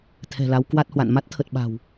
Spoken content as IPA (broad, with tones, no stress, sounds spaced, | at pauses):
t̪ʰ ɛ̤˨˩ l a˨˦ w k w a˦˥ t̚ h w a̰˧˨ n m a˦˥ t̚ t̪ʰ ə˨˩ t̚ ɓ a̤˨˩ w